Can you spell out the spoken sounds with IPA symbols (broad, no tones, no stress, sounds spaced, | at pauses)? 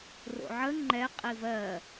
r o̰ ʕ ə ŋ͡ǃ ɛ qʼ i v ɜ